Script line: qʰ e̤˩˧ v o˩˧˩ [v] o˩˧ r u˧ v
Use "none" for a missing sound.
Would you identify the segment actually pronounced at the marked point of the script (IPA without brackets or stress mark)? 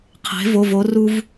v